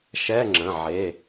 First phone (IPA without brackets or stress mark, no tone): ʃ